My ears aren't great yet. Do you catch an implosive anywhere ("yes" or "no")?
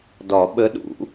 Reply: yes